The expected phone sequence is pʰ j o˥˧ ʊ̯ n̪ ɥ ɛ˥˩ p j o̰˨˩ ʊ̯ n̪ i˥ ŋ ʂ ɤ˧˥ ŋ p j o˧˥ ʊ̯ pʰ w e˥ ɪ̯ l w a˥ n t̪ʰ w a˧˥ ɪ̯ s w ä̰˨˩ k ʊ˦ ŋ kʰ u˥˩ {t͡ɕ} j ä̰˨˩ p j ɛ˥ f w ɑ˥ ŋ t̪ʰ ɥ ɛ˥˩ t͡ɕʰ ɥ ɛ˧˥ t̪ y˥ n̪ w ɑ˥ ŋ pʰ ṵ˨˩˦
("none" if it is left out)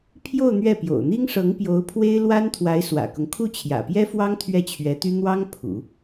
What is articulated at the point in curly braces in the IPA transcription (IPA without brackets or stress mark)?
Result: t͡ɕʰ